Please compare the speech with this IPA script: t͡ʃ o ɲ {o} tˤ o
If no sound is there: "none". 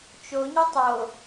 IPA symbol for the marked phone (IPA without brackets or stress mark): o